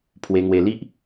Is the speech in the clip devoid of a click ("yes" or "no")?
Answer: yes